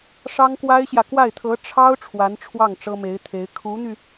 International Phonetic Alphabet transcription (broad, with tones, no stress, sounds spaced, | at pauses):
ʂ ɑ˥ ŋ k w a˥ ɪ̯ ɕ j ä˨ k w a˥˩ ɪ̯ t̪ʰ ɤ˧˥ ʈ͡ʂʰ ɑ˥ ʊ̯ ʈ͡ʂʰ w a˧˥ n ʈ͡ʂʰ w ɑ˥˩ ŋ ʈ͡ʂ ɤ˥ m e˧˥ ɪ̯ t̪ʰ e˧˥ ɪ̯ kʰ u˧˥ n̪ y˧